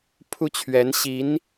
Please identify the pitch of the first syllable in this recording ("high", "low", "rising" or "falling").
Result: high